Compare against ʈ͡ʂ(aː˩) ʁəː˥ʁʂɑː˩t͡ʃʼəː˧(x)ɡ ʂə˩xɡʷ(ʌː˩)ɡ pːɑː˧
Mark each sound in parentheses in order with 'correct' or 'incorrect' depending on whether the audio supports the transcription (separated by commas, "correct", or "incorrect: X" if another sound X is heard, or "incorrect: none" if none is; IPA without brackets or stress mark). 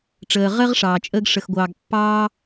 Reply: incorrect: əː˩, incorrect: none, incorrect: ɑː˩